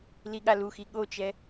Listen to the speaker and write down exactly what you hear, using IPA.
l i ɠ a l u x i ɠ o t͡ʃ ɛ

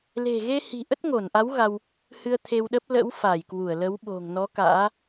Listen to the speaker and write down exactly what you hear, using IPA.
l e̤˨˩ ɣ e˧ h i̤˨˩ ʔ ə˦˥ t̚ ŋ o˧˩ n ʔ a˨˦ w ɣ a˧ w | h ɨ˧ ə̯ t̪ʰ e˧ w ɗ ə˦˥ p̚ l ə̰˧˥ w f a˧˩ j k w u˧˩ ə̯ l ə˨˦ w ɓ o̤˨˩ ŋ n ɔ˨˦ k a̰ː˧˥

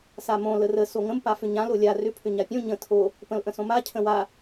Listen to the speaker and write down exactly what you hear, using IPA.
s a m õ l ə r ə s o ŋ ə̃ m p a f ʏ ɲ ã l o lʲ a r ʏ pʰ ʏ ɲ a pʲ õ ɲ ə̃ tʰ o | p ə̃ l ʔ ə̃ s õ m a cʰ ə̃ w a

